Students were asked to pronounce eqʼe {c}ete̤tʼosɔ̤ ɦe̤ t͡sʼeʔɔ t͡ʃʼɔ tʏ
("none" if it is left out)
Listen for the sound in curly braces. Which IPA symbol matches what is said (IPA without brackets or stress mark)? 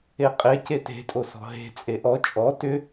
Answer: c